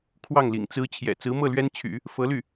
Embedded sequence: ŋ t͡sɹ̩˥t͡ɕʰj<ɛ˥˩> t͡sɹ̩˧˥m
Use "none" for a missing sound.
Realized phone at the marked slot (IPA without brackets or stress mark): ɛ̰˨˩